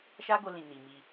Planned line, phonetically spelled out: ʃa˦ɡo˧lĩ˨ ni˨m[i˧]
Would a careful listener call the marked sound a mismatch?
no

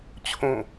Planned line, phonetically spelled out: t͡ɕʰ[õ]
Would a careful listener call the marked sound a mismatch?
no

